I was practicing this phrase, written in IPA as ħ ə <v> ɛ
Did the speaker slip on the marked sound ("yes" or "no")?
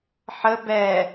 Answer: yes